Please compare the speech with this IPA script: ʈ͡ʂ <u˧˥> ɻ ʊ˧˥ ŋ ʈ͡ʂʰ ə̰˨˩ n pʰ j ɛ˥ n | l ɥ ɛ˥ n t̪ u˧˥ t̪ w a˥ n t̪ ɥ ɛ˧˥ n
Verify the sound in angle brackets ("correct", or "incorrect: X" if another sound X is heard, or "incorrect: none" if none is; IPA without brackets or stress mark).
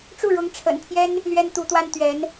incorrect: u˥˩